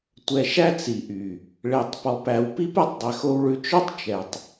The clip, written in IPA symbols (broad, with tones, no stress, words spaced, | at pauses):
tʷɛ˨ʃæ˦ t͡si˨ʔy˨ | ɭe˨tˤpɔ˨pæ˨wpi˦p ɛ˦tˤdˤɛ˨xo˧wɭʉ˧ t͡ʃɵ˦tˤt͡ʃɛ˨tˤ